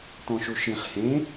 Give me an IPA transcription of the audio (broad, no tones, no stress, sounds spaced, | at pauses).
t ɔ̃ ʃ u ʃ ĩ χ h ẽ